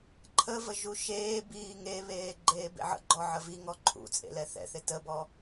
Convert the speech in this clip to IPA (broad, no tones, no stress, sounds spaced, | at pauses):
ǃʰ ə v ə ʒ u ʃ eː b iː ŋ e β eː ɡ͡ǃ eː b ḛ ʕ ə̰ ɡ͡ǃ ɔ ʕ ə v i ŋ ɔ ǃʰ ṵ t͡sʼ ḛ l ɛ θ ɛ̰ θ ɪ t ə b ɔ